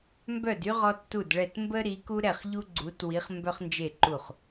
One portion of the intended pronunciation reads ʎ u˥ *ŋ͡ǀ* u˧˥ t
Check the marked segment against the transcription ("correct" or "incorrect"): incorrect